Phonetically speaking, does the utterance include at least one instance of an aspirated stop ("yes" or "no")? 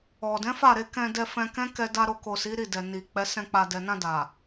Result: no